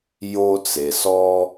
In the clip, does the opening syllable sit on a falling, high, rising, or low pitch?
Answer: high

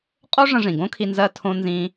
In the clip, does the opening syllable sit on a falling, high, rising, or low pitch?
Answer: high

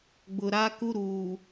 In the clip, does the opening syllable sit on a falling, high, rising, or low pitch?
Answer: low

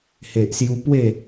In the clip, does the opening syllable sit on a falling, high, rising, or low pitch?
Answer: low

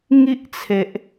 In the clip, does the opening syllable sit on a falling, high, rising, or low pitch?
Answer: high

